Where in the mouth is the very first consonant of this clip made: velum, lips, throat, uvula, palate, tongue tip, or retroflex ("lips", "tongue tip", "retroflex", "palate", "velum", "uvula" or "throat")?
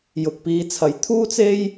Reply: palate